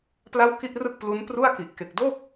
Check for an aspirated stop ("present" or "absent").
absent